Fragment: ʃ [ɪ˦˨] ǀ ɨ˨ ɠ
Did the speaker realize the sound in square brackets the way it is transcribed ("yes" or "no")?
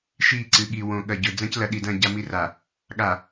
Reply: no